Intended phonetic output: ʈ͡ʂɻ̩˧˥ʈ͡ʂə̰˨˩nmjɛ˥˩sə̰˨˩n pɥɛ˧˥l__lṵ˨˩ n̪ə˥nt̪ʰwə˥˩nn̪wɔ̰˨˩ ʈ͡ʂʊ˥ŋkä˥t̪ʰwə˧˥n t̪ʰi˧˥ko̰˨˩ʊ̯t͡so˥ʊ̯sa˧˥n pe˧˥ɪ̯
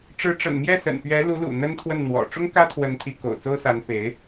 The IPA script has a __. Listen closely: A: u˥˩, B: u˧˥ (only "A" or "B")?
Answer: B